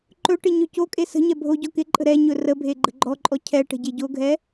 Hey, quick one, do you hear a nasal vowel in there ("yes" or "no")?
no